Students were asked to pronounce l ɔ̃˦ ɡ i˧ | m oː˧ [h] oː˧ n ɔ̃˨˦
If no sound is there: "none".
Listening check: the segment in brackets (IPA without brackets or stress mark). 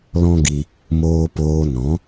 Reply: p